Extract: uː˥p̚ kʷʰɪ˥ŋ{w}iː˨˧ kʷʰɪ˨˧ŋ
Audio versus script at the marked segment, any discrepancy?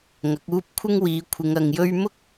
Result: no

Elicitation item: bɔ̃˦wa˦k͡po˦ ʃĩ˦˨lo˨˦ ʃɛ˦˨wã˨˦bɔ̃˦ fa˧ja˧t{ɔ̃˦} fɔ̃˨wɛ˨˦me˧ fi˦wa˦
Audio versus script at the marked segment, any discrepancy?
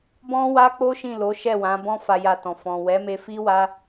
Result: yes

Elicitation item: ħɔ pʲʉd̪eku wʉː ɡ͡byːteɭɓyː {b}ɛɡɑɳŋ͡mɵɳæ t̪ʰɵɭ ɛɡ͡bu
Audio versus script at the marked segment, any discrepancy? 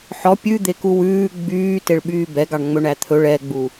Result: no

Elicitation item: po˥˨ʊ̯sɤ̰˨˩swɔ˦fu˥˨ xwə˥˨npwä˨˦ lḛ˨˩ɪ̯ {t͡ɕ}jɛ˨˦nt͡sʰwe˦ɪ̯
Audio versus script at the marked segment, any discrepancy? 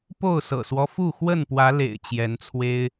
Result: no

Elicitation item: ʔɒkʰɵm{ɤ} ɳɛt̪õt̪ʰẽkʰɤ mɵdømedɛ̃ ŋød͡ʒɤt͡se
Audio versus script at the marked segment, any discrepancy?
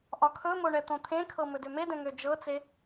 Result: yes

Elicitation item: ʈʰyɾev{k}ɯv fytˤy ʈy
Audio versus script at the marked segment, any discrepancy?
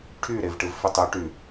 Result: yes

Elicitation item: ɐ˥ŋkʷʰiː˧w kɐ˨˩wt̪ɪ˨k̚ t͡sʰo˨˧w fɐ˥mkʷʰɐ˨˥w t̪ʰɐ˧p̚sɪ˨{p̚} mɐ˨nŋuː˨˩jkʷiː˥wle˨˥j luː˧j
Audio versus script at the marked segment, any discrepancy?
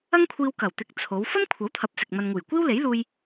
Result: yes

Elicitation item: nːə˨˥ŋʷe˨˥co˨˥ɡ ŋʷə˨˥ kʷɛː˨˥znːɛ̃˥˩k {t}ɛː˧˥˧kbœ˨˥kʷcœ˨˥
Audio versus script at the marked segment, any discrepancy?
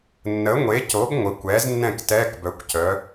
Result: no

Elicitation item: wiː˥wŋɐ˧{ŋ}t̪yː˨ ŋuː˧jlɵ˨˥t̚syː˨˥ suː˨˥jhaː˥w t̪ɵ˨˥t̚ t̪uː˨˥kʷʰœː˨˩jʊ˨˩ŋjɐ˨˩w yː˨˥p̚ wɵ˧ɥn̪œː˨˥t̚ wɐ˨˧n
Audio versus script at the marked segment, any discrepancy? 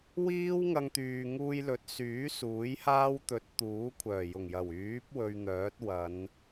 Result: no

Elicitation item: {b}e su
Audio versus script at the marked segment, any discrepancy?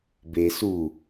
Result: no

